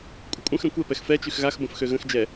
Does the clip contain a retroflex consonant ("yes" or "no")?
no